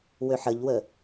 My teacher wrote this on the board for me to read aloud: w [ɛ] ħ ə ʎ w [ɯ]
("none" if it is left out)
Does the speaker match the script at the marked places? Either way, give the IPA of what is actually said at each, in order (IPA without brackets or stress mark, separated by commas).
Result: ø, ə